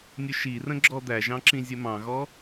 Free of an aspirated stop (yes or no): yes